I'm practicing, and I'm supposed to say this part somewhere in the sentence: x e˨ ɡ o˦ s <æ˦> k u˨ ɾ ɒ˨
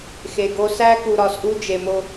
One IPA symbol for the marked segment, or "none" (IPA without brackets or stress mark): æ˦